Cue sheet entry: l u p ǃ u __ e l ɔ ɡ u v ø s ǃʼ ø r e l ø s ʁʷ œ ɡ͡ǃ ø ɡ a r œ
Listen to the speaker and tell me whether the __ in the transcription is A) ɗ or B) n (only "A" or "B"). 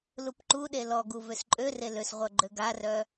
A